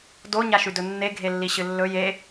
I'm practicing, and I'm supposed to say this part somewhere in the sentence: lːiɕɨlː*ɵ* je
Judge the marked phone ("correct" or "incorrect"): correct